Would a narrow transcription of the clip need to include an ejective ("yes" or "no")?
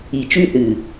no